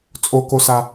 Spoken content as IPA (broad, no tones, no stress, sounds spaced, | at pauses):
t͡sʼ o k o s a